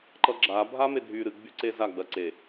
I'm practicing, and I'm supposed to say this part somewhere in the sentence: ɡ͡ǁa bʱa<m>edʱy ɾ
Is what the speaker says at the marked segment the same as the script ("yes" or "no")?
yes